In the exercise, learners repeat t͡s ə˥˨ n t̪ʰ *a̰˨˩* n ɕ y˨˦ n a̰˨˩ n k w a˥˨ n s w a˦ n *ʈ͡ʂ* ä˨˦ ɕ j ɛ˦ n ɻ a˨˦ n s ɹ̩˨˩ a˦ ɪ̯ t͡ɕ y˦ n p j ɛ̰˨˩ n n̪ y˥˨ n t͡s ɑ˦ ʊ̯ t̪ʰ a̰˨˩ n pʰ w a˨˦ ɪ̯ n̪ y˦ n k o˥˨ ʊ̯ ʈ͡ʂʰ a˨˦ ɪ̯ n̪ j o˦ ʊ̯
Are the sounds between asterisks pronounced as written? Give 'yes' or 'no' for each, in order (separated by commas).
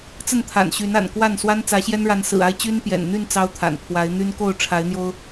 yes, no